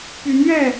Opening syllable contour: rising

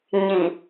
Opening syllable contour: low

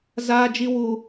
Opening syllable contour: high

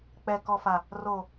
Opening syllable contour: low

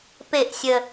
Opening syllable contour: falling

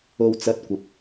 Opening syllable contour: high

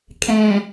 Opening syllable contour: low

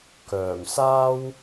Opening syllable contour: low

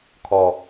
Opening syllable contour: low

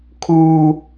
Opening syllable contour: high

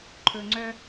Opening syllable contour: low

